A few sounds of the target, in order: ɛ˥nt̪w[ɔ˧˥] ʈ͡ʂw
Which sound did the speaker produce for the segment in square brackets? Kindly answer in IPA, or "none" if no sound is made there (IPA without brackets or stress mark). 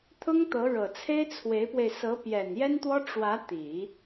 ɔ˥